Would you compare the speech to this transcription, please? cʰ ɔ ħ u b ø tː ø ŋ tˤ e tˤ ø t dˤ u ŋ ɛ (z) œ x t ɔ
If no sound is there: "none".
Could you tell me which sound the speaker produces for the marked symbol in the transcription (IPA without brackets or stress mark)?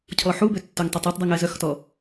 z